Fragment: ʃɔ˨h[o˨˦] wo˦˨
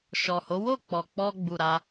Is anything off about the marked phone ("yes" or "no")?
no